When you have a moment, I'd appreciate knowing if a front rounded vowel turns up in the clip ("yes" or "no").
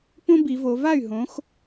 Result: yes